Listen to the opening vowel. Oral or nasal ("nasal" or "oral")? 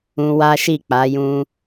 nasal